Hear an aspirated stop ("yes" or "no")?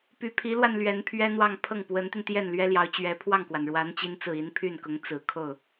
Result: yes